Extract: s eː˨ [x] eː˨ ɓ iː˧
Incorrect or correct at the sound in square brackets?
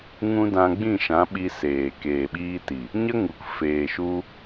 incorrect: k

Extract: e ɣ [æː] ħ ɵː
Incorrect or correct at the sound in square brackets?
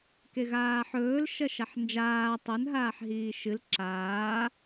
incorrect: aː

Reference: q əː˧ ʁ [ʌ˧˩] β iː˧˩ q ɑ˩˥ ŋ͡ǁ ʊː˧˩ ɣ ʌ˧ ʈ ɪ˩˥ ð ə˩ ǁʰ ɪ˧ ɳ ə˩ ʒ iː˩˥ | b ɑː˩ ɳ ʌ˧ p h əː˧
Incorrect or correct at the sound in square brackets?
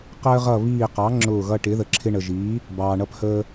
correct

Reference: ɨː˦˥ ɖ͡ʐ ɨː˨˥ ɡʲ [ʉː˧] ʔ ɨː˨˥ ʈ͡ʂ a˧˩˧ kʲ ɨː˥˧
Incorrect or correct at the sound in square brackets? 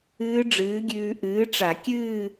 correct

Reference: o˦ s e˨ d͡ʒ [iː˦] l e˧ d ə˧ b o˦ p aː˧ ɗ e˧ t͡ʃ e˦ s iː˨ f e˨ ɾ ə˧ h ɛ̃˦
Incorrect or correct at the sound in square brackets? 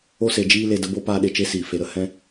correct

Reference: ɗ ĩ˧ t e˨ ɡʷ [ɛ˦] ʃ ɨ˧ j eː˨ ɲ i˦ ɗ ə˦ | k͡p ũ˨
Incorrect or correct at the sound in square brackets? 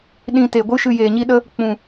incorrect: ɨ˦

